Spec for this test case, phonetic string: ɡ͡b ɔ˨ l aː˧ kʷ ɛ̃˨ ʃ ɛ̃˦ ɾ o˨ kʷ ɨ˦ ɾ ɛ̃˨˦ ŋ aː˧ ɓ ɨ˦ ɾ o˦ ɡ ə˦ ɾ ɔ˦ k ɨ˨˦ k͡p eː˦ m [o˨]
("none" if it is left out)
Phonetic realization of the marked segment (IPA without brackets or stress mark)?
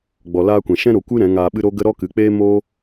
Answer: o˦